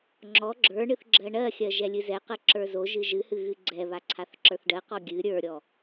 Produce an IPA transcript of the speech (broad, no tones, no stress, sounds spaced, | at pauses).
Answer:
ŋ͡ǁ ɔ ɡ͡ǁ ə˞ ɳ ɨ θ ɡ͡ǁ ɜ ɳ ɜ xʲ ɜ ʒ ɛ lʲ ɨ z ɛ q ɜ ǁ ə˞ z o ʒ ɨ ʒ ɨ h ɨ ɣ ɨ ɡ͡ǀ ɛ β a ǀʰ a θ ǁ ə˞ θ ɖ ɜ q ɔ ɡʲ ɨ ɾʲ ə˞ ɾʲ ɔ